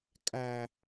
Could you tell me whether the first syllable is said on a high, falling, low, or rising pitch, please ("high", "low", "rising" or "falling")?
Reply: low